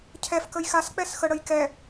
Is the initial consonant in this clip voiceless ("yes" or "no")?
yes